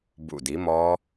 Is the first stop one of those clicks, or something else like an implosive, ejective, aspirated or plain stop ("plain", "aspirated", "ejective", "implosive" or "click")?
plain